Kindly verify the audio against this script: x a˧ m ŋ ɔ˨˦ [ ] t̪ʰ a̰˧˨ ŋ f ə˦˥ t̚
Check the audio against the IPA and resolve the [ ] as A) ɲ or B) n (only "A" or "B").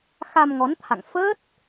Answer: B